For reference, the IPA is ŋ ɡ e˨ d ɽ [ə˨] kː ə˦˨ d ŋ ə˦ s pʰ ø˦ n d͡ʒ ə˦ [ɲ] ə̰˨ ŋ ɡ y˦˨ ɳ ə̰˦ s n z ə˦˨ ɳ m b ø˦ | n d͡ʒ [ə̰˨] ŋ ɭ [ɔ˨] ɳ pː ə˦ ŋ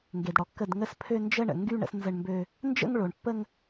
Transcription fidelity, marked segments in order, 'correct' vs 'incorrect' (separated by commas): incorrect, incorrect, incorrect, incorrect